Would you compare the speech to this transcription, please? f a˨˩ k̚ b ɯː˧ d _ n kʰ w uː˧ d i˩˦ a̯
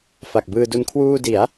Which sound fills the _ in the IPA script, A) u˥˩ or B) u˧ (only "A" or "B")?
B